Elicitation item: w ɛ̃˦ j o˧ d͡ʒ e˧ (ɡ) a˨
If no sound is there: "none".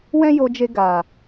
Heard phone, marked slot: ɡ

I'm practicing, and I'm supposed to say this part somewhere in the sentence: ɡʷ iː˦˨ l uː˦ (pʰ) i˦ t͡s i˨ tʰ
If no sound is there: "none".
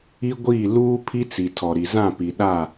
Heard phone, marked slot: pʰ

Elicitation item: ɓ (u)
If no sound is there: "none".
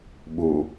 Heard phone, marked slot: u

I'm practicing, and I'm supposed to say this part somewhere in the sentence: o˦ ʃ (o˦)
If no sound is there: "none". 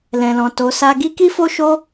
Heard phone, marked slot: o˦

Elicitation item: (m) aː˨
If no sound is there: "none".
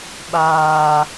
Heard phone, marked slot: ɓ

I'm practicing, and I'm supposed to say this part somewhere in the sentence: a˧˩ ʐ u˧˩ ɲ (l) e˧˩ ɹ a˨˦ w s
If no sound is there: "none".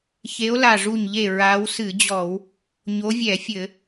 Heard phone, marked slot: ʎ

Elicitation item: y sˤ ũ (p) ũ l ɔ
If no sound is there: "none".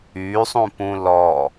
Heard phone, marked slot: p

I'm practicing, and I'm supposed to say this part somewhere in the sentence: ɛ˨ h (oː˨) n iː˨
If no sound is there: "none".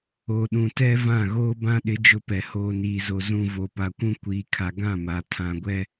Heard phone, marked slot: oː˨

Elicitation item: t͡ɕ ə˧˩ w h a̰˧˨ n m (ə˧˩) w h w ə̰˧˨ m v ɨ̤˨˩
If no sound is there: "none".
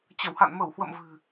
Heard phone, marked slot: ə˧˩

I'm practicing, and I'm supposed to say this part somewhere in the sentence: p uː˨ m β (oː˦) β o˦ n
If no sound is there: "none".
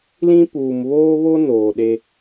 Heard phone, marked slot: oː˦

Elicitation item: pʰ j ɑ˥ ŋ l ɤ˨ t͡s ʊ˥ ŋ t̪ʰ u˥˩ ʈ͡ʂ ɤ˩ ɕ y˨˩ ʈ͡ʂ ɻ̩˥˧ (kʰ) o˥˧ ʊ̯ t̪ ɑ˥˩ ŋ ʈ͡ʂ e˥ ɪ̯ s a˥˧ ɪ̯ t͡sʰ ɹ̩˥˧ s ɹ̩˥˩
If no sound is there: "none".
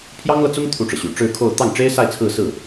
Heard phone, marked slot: kʰ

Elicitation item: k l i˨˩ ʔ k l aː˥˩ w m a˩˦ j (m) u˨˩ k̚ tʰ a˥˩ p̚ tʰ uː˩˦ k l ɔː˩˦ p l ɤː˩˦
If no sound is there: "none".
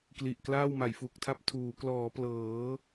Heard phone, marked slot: f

